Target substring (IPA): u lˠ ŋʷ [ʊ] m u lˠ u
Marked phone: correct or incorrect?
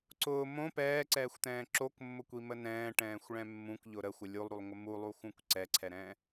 incorrect